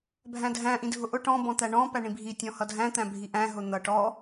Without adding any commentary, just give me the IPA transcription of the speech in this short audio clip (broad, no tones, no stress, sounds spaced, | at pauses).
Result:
bʱ æ̃ dʱ æ̃ ʔ ĩ dʱ ʊ ʔ ʊ ʈ ɔ̃ b ɔ̃ t̪ æ ɳ ɔ̃ p æ ɳ ĩ bʱ i tʲ ɔ̃ h ʌ dʱ æ̃ t̪ æ̃ bʱ i ʔ æ̃ ɦ ʊ n̪ ʌ ʈ ɔ